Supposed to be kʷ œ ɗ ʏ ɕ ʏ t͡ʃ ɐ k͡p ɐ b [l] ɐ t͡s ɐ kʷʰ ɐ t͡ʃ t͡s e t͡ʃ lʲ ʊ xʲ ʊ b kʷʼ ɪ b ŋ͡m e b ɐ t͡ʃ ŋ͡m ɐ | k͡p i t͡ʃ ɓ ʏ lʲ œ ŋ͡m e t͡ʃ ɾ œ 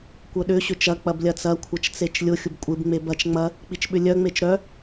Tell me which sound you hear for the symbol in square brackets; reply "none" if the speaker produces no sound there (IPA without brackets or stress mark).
lʲ